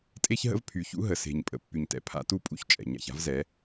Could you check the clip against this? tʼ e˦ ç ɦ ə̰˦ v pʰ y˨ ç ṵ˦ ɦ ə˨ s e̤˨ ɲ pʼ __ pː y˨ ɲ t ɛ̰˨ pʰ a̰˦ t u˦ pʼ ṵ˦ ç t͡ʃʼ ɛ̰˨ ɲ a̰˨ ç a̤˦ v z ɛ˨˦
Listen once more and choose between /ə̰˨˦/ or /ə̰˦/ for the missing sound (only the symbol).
ə̰˨˦